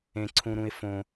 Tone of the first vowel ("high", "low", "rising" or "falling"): low